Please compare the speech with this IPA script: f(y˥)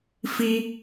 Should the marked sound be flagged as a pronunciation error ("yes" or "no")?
yes